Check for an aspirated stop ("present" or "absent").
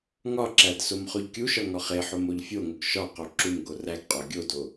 absent